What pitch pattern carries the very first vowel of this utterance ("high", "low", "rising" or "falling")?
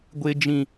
high